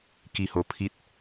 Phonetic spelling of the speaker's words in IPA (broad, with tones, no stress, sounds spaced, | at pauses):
k i˧ h o˧ pʰ i˦ t̚